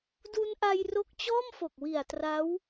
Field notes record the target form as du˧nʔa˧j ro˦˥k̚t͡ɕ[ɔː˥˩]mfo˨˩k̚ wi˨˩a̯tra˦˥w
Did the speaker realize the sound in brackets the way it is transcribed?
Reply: yes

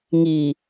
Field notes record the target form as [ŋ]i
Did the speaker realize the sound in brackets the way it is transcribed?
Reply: yes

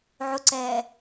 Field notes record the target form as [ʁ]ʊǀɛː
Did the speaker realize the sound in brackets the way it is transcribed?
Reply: no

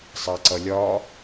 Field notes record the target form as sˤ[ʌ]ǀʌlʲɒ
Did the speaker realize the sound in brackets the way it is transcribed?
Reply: no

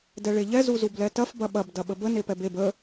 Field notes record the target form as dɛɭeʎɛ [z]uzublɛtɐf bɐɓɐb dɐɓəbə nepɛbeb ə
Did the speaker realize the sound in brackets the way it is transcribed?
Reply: yes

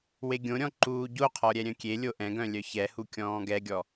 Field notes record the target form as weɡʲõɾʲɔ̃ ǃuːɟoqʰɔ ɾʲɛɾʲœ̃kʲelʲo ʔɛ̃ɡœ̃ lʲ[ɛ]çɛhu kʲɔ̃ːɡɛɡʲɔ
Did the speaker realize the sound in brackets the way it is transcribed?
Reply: no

